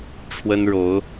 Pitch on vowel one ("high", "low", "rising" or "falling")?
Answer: high